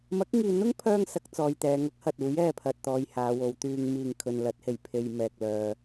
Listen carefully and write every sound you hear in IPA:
mɐ˨˥k̚ŋiː˨n̪ʊ˥ŋpʰœː˧ŋ sɐ˨˥k̚t͡sɔː˨jt̪ɛː˨˧ ŋɐ˨˥k̚ hɐ˨t̚uː˨˥j ɛː˧pʰɐ˨t̚ t̪ɔː˧jhaː˨˧wo˨˧wt̪yː˧ŋ miː˨˩ŋ kʰɵ˨nlɐ˨˥t̚he˨˩j pʰe˧jmɛː˨k̚lœː˨

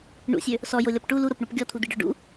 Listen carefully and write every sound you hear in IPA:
ɳṵsʲø | sɔjolʲɔp ʈu luɾopɳop ɡʲɔt̪ʰud̪iɖɔ ɖṵ

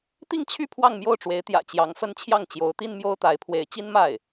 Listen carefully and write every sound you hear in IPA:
t̪i˥˧ŋt͡ɕʰy˥˧ pʰwɑ˥˧ŋmjo˥˩ʊ̯ʈ͡ʂwe˧˥ɪ̯ t̪jä̰˨˩ t͡ɕjɑ˧˥ŋfə˥n t͡ɕʰjɑ˥˩ŋt͡ɕjo˧˥ʊ̯t̪i˥n mjo˥ʊ̯t̪a˧˥ɪ̯pʰwe˧˥ɪ̯ t͡ɕi˥nma˥˩ɪ̯

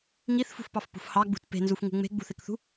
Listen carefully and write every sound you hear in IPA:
ŋiθfṳfpɑfpṳf hɑɡ͡bṳt pe̤nzufŋṳ ŋ͡me̤ɡ͡bṳθekθṳ

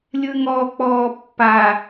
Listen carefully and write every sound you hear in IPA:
lʲɯŋɔk͡pɔː pːa

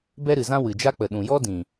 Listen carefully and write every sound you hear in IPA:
bɛ˦ɾɨ˨zã˦ wɨ˨d͡ʒa˦k͡pə˨ ɗũ˨jɔ˦ dĩ˨

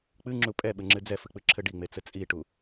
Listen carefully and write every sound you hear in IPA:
k͡pɨŋ͡ǁu pʼɛɓɘŋ͡ǁɨ d͡zɛfɨk͡pɨǁʰɘ ɖiŋ͡met͡sɘ t͡sʼiʈu

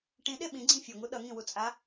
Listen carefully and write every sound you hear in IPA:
ʈĩɗe ɓĩɡ͡ǀĩ fʲoŋu ɗʌŋĩwut͡sʼa

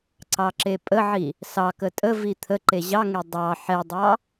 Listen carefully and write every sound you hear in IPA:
ǀɑǁepʼəʕi | sɑkə tʼəvi t̪ʰə ǃeʑɑŋe dˤɑ ħɛdˤɑ

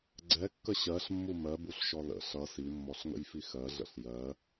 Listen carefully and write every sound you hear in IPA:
ɡ͡ǀɛkːə ɕɜɬmːu mɜbuɬʃɔ lə̰ ɬʌ simːɔɬŋə̰jfi xɜɮə̰ɬ jɜ

